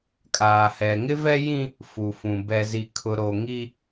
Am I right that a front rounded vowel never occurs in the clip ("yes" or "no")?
yes